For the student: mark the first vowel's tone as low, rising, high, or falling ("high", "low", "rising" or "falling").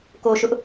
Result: low